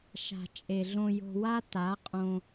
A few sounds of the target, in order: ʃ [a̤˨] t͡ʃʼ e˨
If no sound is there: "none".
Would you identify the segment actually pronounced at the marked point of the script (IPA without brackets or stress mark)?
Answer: a̤˨